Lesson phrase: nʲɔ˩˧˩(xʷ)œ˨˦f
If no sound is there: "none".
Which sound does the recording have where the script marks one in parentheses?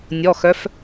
x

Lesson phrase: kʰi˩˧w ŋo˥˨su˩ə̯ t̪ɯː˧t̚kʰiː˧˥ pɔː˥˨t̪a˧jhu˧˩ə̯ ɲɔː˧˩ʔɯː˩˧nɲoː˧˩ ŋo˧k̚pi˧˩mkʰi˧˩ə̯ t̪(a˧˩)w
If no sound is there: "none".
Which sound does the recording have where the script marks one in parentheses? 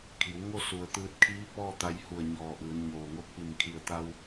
a˧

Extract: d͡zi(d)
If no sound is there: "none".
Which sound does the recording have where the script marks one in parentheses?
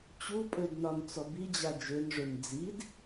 d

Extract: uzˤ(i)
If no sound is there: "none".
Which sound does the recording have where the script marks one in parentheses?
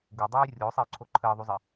i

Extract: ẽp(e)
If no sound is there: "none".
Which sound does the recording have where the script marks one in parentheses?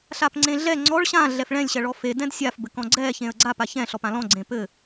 ɘ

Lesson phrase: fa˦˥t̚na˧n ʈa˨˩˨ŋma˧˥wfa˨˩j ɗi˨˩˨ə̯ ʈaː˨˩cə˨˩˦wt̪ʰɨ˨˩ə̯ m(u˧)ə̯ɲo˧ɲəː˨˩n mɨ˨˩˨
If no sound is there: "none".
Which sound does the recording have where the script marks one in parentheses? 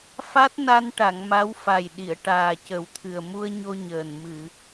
u˧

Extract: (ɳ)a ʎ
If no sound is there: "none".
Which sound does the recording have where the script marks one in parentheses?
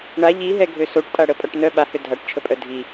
ɳ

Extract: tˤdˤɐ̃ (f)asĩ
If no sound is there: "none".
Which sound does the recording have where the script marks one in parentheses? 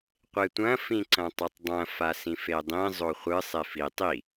f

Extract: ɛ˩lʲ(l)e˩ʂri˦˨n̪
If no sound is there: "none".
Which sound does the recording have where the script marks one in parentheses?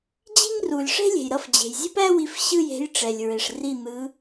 ɹ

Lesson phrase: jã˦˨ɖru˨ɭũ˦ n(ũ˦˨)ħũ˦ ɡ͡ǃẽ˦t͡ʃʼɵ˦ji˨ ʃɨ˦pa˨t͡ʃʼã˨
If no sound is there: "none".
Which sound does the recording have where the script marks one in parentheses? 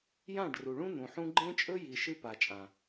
ũ˨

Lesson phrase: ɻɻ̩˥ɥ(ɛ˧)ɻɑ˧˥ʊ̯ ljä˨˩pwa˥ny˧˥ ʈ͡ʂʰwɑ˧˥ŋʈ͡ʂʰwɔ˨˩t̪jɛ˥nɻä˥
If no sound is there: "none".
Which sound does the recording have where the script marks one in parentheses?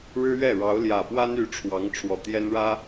ɛ˥˩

